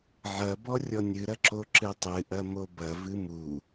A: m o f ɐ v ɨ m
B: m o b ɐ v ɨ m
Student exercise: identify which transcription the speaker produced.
B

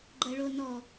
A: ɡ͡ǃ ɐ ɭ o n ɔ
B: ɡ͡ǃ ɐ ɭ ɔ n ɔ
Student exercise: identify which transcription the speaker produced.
A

